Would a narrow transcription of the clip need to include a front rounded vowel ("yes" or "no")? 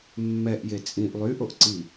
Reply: yes